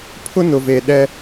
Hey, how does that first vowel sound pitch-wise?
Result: high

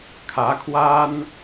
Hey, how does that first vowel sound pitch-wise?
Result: rising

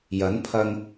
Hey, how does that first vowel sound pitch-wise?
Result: rising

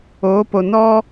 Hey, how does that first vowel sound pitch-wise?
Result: rising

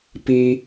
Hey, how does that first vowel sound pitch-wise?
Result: high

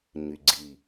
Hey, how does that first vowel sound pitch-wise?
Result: low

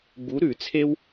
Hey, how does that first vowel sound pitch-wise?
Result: rising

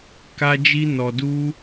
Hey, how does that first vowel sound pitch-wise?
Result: high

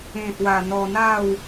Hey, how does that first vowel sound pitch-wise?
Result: low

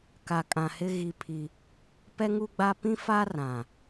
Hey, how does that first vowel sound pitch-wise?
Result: low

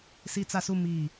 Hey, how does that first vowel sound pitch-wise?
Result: high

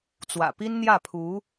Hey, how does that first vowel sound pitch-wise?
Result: low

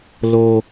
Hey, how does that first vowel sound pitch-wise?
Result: high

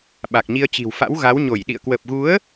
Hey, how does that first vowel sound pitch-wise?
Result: low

